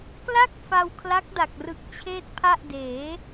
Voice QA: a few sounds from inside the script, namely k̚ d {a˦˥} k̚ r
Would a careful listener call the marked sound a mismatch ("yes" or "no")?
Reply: yes